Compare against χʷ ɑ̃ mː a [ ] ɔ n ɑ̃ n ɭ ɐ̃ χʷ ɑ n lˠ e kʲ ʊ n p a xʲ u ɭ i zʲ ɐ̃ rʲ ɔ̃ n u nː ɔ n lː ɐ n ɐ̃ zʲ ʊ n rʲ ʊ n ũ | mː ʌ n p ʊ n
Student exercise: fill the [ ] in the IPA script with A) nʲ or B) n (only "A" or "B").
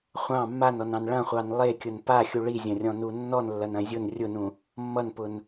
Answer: B